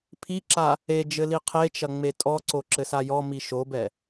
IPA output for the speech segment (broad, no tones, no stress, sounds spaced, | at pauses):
pʰ i ǁ a | e d͡ʒ ɘ l i qʰ e t͡ʃ ɐ ŋ͡m e tʼ ɔ ǀ o ǁ ɘ s a j ɔ m i ʃ o b ɛ